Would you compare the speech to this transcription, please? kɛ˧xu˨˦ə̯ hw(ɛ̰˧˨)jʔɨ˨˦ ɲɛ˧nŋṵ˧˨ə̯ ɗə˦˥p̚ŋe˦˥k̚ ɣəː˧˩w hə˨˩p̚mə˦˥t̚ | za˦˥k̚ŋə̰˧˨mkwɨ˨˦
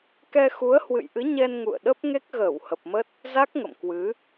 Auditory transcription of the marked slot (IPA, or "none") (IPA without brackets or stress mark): ɨ̰˧˨